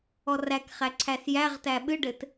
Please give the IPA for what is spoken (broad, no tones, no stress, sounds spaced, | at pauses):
ɔ r æ k χ æ ǀʰ æ s j æ ʁ t æ ɓ ɨ ɖ ɘ t